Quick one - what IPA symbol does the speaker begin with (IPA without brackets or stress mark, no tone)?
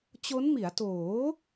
t͡ɕ